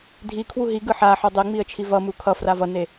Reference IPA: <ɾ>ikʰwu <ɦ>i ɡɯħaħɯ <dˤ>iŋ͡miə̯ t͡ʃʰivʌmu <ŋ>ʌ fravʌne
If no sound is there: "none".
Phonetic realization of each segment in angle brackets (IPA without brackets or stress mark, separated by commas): dʱ, ɦ, dˤ, kʰ